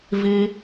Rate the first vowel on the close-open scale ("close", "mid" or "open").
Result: close